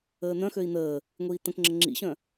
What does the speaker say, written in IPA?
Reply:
əː n̪ œ̃ x ø i̯ n̪ əː | ŋʷ iː t̪ ə̃ k ŋ͡ǁ ə ŋ͡ǁ ḭ ɕ œ̃

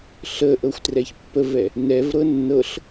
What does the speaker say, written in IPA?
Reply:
ɬ ə ʔ ɤ xʷ t r ɛ ç pː ə v ɛ | n ɛ v ɾ ɤ nː ɤ ɬ

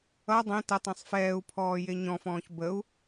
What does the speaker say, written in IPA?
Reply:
ʌ dˤ ẽ t ə tˤ ẽ sˤ f ɛː u̯ pʰ ɔː j e ɲ ɔ̃ f ɔ̃ː ç b ə u̯

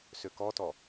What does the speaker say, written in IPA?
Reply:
s ø k ɔ t ɔ

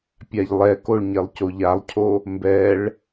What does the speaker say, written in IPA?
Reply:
pʲ a ʎ lˠ ɛ k o ɭ ɲ e lˠ c o ʎ a lˠ cʰ o | m b ɛ ɭ

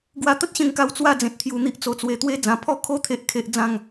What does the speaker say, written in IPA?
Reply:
ɡ w a˧ t̪ ə˦ t̚ ɕ ẽ˧ ŋ k a˧ w t͡s w a˥˧ d͡z ẽ˨ t̚ t̪ʰ j u˧ n̪ i˦ ʔ t͡s o˨˩ t͡s w e˨˩ t̪ w e˦ d͡z ã˧ pʰ ɔ˦ kʰ o˦ t̪ʰ e˦ ʔ kʰ e˦ ʔ d͡z ã˥˧ ŋ

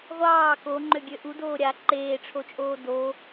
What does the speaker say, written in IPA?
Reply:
ʁʷ ɑː k o ŋ͡ǃ ø ɡʲ ø ʔ u d oː ɾʲ a ǃ eː ʈ͡ʂʰ o t͡ʃʼ oː d o

